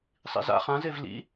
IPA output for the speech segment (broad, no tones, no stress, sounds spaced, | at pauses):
sˤ ḭ z a̰ χ ã z e v l ḭ